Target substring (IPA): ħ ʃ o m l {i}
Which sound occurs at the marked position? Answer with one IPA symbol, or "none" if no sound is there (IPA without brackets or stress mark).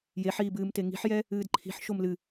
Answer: ɨ